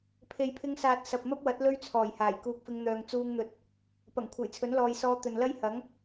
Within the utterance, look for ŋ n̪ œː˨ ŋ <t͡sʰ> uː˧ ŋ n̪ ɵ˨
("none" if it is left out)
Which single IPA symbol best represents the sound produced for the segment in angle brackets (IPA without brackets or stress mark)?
t͡s